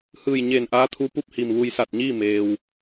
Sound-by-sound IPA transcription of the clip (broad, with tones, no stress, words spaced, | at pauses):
hɯː˧˩jɲe˧˩n ʔa˧˥t̪ʰu˧˥pu˧˥p̚ hi˧˩mʋu˧j sa˧˩t̚ɲiː˥˨ meː˩w